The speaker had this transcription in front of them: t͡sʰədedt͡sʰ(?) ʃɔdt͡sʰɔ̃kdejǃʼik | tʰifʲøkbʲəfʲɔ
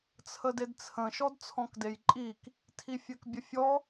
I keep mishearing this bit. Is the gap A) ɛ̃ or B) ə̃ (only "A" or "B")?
B